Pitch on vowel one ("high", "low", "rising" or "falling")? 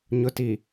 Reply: low